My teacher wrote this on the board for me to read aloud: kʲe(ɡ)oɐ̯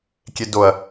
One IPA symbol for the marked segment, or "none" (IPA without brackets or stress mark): d